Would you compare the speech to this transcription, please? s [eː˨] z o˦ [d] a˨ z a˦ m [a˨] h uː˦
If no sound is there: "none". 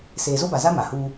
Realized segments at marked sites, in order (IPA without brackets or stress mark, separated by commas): eː˨, b, a˨